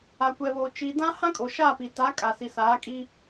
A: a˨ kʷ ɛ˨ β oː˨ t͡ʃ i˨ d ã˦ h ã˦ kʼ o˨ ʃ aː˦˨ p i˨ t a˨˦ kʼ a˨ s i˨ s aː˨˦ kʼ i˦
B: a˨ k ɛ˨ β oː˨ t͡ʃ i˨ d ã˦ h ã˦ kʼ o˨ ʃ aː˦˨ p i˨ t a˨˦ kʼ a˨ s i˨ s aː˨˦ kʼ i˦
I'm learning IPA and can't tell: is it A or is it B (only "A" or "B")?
A